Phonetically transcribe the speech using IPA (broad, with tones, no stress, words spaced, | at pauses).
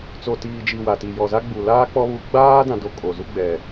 t͡so˨tiː˨d͡ʒi˨ wa˨ti˨ jɔ˨za˦ɡ͡bu˨ laː˦k͡pɔ˦ βu˦ ɡ͡baː˦ dã˦do˦kʼo˨ zu˦ɡ͡bɛ˨